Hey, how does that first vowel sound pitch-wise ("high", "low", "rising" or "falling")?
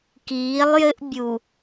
rising